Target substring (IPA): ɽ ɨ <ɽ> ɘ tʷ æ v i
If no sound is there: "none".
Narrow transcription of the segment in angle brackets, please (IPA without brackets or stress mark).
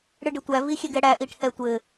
ɖ